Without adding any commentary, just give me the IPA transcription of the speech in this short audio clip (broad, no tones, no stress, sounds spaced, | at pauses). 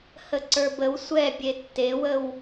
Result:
h ə ǀ ə˞ b ə w sʷ ɛ bʲ e tː e w ə w